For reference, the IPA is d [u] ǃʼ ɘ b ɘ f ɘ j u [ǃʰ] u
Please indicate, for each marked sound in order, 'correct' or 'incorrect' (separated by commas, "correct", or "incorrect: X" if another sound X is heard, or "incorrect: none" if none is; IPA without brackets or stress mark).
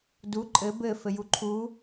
correct, correct